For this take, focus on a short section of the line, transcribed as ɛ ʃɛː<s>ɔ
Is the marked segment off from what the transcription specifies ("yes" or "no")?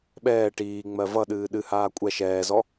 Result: yes